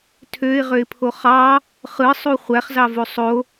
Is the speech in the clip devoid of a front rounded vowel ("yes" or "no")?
no